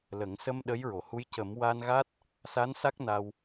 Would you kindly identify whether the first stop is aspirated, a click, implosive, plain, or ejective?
implosive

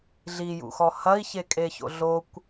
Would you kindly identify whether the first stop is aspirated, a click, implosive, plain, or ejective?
ejective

